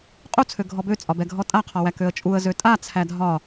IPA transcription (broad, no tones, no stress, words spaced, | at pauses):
qʼu t͡sʰøɡʱɔbø t͡sʼɒbɛɡʱɔtʼa qʰɒwækøə̯t͡ʃʼuə̯ zøtʼa t͡sʰædʱɒ